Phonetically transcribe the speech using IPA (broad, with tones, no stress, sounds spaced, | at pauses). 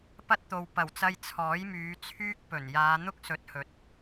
p ɐ˥ t̚ t̪ o˨ w p ɐ˨˩ w t͡s ɐ˧ j t͡sʰ ɔː˨˥ j m yː˨˧ t͡sʰ yː˥ k̚ p ɵ˨˩ n j aː˨˧ n̪ ʊ˥ k̚ s ɵ˨˥ t̚ h ɵ˨˥ t̚